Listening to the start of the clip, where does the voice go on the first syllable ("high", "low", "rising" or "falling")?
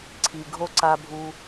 low